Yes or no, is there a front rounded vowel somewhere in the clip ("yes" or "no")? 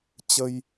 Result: no